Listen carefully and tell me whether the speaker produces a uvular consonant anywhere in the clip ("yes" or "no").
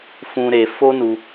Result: no